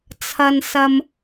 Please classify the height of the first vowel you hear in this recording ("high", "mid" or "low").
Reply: low